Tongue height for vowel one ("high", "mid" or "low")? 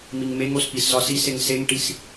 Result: high